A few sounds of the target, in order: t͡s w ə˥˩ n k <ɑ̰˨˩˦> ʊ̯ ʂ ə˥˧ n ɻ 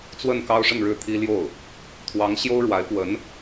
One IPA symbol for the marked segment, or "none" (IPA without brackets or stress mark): ɑ˥